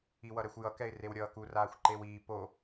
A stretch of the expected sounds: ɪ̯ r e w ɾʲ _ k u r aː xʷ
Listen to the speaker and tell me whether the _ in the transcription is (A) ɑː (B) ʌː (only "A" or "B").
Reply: B